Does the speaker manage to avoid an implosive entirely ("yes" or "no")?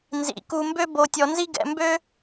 yes